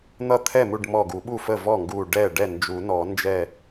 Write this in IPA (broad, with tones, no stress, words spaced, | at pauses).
n̪ʌ˥˩t̪ʰɛ˥˩mu˥˩ɖmɔ˧˩ ɡu˨˩˦ɓu˥˩fə˥˩ vɔ˥˩ŋɡu˧˩ ɖɛ˥˩ ɖɛ˥˩nd͡ʒu˨˩˦nɔ˨˩˦ nd͡ʒɛ˧˩